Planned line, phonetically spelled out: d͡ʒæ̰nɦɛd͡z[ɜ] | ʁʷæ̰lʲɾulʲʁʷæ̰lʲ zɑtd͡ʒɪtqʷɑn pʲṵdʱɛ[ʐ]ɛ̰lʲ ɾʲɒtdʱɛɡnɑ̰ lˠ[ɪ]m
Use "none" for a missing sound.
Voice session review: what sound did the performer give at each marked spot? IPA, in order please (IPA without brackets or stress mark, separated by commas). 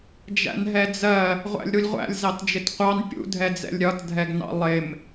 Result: ɜ, d͡z, ɪ